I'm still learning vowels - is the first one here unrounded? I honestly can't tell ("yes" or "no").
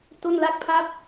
no